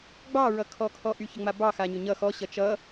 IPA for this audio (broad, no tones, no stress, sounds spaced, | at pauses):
ɡ͡b ɑ ɹ ʌ kʰ ɔ kʰ ɔ ʔ y ç ə ŋ͡m a b ɑ x a ɲ ʏ ɲ ʌ x ɔ ɕ ʌ t͡ʃ ʌ